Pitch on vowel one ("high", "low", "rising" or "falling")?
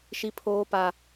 high